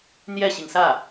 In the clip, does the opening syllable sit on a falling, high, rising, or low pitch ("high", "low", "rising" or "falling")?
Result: falling